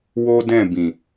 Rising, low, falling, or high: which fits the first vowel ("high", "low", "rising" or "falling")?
high